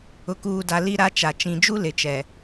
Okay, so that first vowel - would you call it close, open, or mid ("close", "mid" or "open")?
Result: close